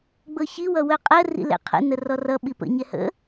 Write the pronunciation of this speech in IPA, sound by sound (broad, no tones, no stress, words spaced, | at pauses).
ɡ͡bɤçi wʌwœqʼɜ rḭlɛ̰qʰə̰ nərɔrʌ ɓipə̰ ɲɛhə̰